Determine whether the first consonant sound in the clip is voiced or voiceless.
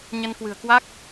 voiced